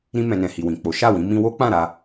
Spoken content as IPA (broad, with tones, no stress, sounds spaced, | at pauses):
ɾ ĩ˧ m ɛ̃˨ n ɛ̃˨ h i˨ w ĩ˨ k͡p o˨˦ ʃ a˦˨ w ĩ˨˦ m ĩ˧ w o˦ k͡p ã˦˨ ɾ a˧